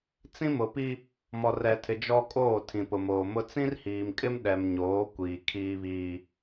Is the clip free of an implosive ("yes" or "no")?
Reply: no